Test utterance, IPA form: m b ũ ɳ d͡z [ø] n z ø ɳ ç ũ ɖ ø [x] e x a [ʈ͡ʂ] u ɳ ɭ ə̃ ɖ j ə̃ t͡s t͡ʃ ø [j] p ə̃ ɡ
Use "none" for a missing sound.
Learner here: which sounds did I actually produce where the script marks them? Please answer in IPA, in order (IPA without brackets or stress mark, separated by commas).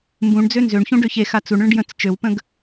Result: ø, ç, t͡s, w